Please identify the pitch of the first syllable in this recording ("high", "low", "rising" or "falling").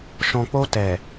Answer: low